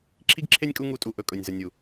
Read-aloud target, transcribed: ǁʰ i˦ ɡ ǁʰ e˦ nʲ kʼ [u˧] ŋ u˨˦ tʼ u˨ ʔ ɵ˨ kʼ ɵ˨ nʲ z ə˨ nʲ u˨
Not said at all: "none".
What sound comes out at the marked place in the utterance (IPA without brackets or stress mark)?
u˧